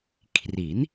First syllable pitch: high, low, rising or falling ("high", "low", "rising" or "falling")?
rising